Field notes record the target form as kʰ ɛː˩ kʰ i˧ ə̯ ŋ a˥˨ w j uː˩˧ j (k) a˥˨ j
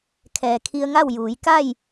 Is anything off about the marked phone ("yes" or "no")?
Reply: no